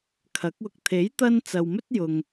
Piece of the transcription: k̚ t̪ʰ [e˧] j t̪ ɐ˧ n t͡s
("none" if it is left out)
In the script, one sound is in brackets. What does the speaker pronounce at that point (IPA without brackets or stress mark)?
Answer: e˨˥